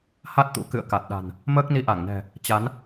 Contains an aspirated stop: no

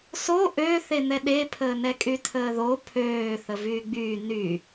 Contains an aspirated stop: yes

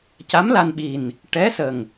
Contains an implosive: yes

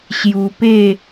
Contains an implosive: no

